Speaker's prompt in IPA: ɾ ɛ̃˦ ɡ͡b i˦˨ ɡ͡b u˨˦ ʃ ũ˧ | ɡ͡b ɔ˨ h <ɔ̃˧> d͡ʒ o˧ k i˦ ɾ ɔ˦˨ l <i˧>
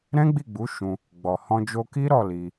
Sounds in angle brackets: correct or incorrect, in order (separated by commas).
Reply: correct, correct